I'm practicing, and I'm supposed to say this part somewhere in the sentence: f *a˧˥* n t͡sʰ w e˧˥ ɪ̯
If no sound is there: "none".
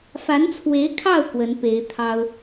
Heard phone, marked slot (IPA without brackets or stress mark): a˧˥